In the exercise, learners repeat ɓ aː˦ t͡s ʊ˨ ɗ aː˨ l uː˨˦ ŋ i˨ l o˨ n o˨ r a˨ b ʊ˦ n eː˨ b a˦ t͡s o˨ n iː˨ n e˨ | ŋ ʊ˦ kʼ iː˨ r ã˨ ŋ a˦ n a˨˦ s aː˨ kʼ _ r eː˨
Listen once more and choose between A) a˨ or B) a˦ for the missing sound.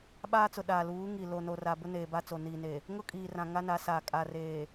A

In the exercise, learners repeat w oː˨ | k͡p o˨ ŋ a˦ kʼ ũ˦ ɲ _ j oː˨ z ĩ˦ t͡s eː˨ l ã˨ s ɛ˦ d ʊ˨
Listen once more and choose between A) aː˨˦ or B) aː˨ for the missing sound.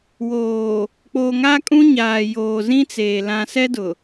B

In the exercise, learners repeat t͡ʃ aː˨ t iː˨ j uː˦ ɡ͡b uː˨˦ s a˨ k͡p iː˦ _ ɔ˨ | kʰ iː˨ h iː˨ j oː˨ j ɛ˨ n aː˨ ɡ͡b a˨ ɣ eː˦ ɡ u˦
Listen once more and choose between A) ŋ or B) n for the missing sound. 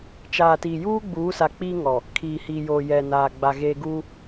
A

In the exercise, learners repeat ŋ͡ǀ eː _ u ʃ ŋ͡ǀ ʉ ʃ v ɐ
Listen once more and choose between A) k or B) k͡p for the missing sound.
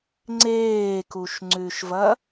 A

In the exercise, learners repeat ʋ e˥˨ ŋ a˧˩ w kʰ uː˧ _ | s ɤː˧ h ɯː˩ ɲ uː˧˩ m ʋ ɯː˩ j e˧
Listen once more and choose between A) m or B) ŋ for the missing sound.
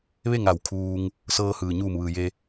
B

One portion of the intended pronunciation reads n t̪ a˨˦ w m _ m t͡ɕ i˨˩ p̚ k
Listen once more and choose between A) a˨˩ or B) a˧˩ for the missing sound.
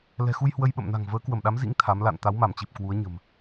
B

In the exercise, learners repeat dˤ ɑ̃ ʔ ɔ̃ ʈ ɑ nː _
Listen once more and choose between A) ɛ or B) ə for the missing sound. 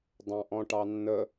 B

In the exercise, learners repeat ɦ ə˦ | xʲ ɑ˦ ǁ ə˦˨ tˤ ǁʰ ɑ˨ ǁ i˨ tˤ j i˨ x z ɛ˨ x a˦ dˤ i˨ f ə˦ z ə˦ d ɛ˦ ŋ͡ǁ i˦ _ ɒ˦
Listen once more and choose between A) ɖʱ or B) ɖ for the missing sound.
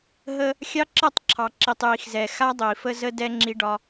B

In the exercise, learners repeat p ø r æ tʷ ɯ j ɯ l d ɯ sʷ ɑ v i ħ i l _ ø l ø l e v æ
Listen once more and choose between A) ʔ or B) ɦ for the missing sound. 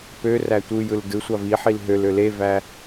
B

